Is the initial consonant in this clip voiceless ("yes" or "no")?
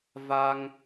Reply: no